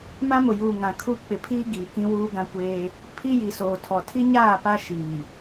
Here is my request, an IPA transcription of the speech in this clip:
mã˦mʊ˨juː˨ ŋã˨kʰu˦ k͡pɪ˨pʰiː˦ ɡiː˨kĩ˦wuː˦ ɡã˦kʷeː˦ | pʰi˦ji˨soː˨tʰɔ˨ tʰi˦ɲaː˦˨ pa˦ ʃiː˨

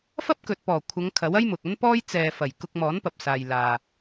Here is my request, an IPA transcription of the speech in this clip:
fɐ˥p̚kɵ˨t̚pɔː˨˩ kʷʰɐ˨˧ŋkʰɐ˨˥wɐ˥j mʊ˨k̚ɐ˥npɔː˥j t͡sɛː˨fɐ˨˩j kʊ˧k̚mɔː˨˥npɐ˨p̚saː˨j laː˨

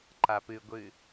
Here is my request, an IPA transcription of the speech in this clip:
ǃapɨɡʷɨ

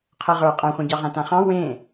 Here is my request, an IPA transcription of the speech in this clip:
qʰɜʁə˞ qʼãχʷẽɟɑʁã tãχɑ̃ wẽ

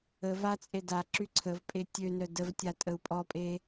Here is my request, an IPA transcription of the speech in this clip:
ə vat͡sʼe da ǁyǀʰəvpʼe tʲønœ dəvtʲatʼəu̯ pʼɔpʼe

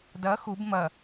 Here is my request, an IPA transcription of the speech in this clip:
dɐ xub mɐ

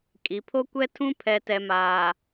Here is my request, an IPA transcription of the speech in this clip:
kʼi˨pʰo˦kʷɛ˦tʰũ˦ pʰɛ˨tɛ˨maː˨

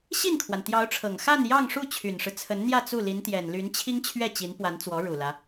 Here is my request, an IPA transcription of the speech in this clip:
ɕi˥˩nkʰwa˩nt̪jɑ˧˥ʊ̯ʈ͡ʂʰɤ˨˩ŋ xa˥˧n jɑ˥˧ŋʂu˥˩ t͡ɕʰy˨˩nʂɻ̩˦t͡sʰə˧˥nn̪jä˥˧ t͡su˥˩li˧˥nt̪jɛ˨˩n ly˧˥nt͡ɕʰi˥ŋ t͡ɕʰɥɛ˥˩t͡ɕi˧˥npwa˧˥nt͡swɔ˧˥ ɻu˨˩lä˦

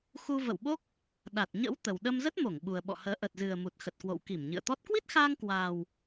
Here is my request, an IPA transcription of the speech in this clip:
xu˧və̰˧˨wɓo˦˥k̚ | ɗa˨˩t̚ɲə̰˧˥w t̪ə˨˩wɗə˧mzə˦˥t̚mo˧˩ŋ ɓu˨˩ə̯ɓɔ̰˧˨həː˨˦ ʔə˨˩t̚zɨ˨˩ə̯ mu˨˩t̚xə˨˩t̚kwo̰˧˨w ki˧˩mɲɨ̰˧˨ə̯t̪ɔ˦˥t̚ kwi˦˥t̚xaː˧ŋkwaː˨˩w

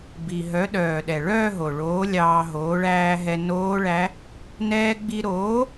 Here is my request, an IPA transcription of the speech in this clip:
bi˨˩ ɦœ˨˥ɗœː˨˩ ɗɛ˨˩ɭœː˥˧ɦo˨˩ ɭoː˨˥lʲɑː˧ɦoː˨˥ ɭæː˧ɦɛ˧ noː˦˥ɭæ˦˥ | nɛː˧ɡ͡bi˧ɾoː˨˥

